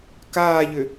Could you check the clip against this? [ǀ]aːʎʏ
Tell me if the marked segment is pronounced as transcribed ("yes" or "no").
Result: no